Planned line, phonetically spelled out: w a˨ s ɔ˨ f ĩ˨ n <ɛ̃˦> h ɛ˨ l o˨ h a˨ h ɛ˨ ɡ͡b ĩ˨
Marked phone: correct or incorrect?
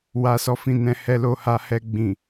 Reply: incorrect